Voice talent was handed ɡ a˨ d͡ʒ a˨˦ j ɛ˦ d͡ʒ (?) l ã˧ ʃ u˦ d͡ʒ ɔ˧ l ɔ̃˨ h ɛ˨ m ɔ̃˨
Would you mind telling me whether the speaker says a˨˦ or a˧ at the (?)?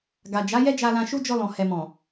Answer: a˧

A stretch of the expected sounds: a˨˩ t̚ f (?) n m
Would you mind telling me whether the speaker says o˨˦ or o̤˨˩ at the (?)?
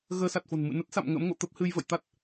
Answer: o̤˨˩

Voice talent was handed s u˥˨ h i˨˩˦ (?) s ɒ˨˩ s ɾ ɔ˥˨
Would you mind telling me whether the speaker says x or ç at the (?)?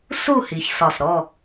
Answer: ç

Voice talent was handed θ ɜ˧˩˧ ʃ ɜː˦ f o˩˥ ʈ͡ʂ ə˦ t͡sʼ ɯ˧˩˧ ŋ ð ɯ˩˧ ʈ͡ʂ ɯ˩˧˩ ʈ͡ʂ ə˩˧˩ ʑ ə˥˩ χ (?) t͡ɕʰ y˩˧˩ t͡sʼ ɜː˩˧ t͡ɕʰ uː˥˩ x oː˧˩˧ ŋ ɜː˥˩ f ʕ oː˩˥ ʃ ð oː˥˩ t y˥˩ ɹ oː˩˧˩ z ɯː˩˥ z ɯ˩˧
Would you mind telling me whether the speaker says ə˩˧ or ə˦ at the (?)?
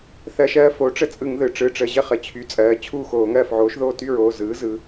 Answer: ə˩˧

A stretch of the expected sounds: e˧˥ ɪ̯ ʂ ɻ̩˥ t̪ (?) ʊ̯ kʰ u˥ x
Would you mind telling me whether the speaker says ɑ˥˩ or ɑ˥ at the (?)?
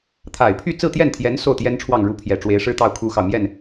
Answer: ɑ˥˩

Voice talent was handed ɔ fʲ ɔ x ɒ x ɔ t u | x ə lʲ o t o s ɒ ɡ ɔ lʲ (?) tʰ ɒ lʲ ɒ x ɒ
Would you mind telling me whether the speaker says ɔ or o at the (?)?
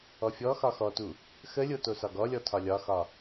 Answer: ɔ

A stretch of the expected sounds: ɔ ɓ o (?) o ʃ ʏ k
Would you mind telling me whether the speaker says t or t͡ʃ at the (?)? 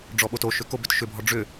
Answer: t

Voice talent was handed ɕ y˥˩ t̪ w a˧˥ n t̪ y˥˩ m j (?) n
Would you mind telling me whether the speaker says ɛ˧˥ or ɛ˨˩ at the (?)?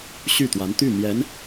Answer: ɛ˧˥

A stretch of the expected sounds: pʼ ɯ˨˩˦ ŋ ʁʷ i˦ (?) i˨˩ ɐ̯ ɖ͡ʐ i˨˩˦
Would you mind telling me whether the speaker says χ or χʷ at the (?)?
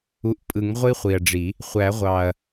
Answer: χʷ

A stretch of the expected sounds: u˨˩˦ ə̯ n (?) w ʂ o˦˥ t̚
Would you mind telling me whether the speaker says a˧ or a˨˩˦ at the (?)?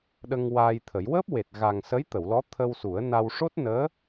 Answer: a˧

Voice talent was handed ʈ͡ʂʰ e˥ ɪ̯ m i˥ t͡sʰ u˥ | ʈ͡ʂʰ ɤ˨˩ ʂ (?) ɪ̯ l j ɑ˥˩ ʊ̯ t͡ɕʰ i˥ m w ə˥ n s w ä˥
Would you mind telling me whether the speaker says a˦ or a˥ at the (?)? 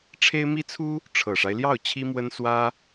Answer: a˦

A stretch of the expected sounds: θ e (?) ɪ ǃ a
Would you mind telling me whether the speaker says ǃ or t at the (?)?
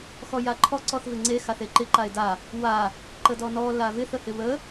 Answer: ǃ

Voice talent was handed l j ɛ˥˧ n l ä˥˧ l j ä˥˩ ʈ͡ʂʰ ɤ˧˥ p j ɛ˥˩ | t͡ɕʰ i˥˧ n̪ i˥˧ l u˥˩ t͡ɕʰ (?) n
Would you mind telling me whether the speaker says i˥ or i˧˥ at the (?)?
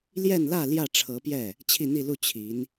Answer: i˧˥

